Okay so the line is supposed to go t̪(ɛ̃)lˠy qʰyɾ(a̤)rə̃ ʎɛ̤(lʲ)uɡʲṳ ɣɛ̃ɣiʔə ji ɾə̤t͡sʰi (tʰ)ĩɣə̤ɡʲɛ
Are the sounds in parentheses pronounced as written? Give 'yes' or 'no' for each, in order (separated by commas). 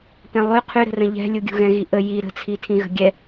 yes, no, yes, yes